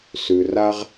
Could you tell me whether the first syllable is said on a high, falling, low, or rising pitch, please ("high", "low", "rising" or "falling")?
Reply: low